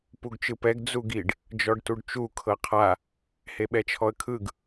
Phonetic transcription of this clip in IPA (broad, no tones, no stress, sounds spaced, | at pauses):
p u ɡ t͡ʃ ɯ p ɛ ɡ d͡z u ɡ i ɖ | d͡ʒ ɔ ɖ t u ɖ t͡ʃ u kʰ ɤ qʰ a | h e ɓ ɛ t͡ʃʰ ɔ ə̯ kʰ ɯ ɡ